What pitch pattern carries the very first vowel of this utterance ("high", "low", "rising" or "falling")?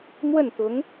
falling